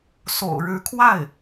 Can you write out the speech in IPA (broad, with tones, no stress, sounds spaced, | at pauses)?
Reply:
s o̰˨˩ ʊ̯ ɻ ɻ̩˧˥ kʰ w a˥˩ ɪ̯